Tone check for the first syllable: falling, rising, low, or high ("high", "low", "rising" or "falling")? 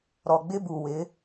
low